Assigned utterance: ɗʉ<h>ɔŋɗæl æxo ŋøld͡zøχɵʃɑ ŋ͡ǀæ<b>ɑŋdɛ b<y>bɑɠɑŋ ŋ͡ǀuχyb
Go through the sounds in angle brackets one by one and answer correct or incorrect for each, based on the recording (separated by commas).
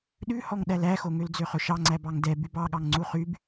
correct, correct, correct